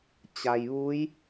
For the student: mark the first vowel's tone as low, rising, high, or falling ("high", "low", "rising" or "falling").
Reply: low